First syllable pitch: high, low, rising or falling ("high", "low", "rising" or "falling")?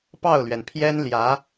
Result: falling